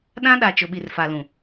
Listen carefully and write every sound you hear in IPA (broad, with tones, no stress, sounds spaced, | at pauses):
ɗ ã˦ ɗ a˨ t͡ʃ ʊ˨ ɓ i˨ r f a˨ l ũ˨